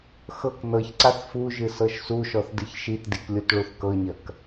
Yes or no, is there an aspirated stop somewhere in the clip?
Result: no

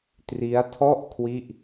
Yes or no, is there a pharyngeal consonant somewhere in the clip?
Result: no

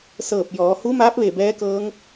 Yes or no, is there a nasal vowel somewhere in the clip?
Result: no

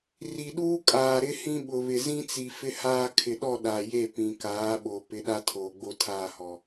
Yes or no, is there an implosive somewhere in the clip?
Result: yes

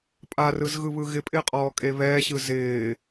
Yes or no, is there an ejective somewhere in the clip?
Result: yes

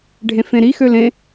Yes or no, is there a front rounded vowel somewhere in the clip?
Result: yes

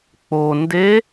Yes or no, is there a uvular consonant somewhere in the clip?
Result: no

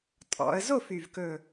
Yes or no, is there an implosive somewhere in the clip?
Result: no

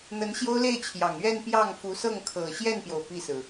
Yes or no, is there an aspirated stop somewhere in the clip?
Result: yes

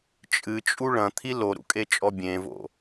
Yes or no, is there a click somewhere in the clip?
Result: no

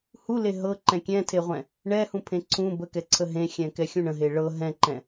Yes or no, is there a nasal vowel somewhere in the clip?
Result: yes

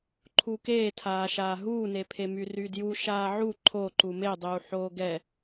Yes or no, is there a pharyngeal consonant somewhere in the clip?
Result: yes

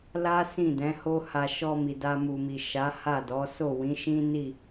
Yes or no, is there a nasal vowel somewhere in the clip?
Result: yes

